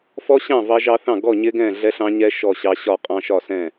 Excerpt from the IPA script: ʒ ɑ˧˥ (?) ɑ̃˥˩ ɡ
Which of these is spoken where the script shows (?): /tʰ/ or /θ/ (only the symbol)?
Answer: θ